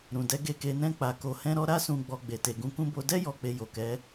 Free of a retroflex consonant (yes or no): yes